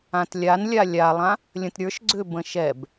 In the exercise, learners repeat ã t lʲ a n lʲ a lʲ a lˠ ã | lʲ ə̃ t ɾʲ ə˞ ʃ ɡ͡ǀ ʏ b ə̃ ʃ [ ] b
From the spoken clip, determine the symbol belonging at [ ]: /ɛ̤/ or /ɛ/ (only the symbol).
ɛ